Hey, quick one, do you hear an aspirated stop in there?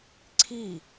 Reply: yes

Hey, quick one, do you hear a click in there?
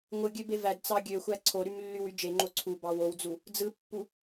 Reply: yes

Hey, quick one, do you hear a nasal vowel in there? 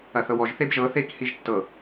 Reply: no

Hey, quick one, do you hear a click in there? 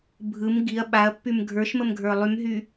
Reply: no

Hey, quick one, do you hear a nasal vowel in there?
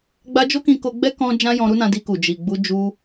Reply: yes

